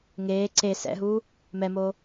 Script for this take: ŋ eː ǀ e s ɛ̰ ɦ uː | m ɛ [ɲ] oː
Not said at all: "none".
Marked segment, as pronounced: m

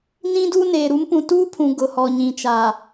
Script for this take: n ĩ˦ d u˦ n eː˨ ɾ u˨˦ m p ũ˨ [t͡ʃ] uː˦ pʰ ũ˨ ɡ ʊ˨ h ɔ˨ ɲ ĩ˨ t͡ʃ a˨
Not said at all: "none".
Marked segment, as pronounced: t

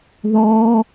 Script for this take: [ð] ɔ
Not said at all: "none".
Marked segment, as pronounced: ð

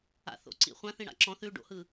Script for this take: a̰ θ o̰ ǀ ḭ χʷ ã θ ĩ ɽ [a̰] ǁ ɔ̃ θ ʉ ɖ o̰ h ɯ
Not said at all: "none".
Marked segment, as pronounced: a̰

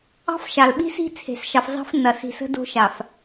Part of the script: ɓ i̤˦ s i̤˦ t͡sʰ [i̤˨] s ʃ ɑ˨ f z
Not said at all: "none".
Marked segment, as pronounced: e̤˨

